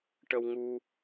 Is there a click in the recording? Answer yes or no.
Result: no